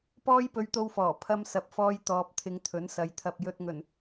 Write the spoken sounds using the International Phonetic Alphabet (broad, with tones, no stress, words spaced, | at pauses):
pɔː˥jpɵ˧ɥt̪o˧wfɔː˨˩ pʰɐ˧msɐ˨˥p̚fɔː˧j t̪ɔː˧p̚t̪ʰɪ˧ŋt̪ʰɵ˨˥nsɐ˨˧j t̪ʰɐ˨p̚ jɵ˧t̚ ŋɵ˨˩n